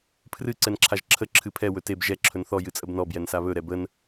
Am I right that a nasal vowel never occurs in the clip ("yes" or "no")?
yes